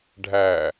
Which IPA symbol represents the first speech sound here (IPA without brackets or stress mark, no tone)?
ɖʱ